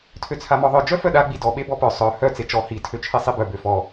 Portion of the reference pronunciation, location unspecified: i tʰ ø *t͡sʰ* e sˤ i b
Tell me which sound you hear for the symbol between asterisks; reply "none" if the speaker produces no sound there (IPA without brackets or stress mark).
t͡ʃʰ